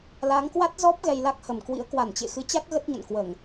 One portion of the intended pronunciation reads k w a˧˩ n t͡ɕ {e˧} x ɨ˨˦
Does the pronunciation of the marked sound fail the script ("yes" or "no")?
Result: yes